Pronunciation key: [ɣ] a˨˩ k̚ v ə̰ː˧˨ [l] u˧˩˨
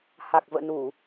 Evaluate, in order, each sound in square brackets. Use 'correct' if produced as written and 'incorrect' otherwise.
incorrect: h, incorrect: n

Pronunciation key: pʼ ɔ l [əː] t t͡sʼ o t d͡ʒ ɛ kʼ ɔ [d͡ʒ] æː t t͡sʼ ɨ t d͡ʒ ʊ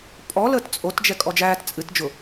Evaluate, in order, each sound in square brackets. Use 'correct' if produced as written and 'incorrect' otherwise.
correct, correct

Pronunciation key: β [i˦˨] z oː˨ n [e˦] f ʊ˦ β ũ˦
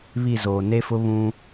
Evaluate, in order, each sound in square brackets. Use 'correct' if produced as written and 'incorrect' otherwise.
correct, correct

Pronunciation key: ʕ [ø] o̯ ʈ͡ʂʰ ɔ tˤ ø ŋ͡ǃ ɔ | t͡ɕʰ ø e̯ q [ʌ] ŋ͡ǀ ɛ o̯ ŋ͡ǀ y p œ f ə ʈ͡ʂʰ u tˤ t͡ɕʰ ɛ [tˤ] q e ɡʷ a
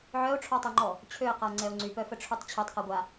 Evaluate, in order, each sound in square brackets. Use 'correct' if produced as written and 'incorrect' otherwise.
incorrect: œ, incorrect: a, correct

